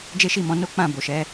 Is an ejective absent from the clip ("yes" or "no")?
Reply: yes